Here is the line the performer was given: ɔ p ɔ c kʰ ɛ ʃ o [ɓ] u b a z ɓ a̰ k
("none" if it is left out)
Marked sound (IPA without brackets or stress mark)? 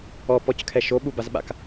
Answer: ɓ